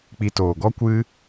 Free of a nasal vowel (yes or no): yes